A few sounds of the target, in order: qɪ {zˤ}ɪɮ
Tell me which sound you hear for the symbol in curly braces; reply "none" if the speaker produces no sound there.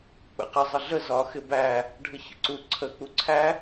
zˤ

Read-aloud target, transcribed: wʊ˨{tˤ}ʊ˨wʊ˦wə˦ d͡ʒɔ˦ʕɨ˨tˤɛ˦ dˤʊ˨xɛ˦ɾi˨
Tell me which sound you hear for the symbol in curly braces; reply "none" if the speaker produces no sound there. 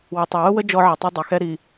tˤ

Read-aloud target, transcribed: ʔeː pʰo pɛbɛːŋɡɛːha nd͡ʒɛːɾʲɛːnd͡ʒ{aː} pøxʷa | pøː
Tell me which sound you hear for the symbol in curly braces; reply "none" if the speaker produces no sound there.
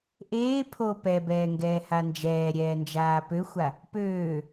aː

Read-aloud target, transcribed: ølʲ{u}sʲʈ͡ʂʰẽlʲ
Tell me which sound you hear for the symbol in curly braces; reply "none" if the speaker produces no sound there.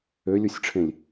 u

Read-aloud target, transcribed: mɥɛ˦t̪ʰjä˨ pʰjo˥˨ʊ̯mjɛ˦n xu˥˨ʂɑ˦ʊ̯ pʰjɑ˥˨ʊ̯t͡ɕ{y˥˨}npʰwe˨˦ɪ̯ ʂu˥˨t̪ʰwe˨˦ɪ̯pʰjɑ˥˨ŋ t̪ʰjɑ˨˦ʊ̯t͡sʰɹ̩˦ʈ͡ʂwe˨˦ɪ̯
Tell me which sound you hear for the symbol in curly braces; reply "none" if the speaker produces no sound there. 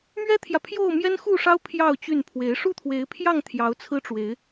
y˥˨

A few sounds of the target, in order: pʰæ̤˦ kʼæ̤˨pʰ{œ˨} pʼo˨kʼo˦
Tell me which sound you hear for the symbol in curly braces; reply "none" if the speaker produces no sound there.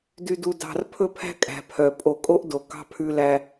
œ˨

